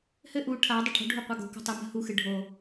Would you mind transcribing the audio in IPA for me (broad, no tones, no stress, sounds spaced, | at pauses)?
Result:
h ɘ ʔ u ʈʰ a dˤ ə ʈʰ o̤ ɖʱ u qʷ a ɡ o̤ k o̤ tˤ ʏ m ə̤ h u x ɨ ɖʱ o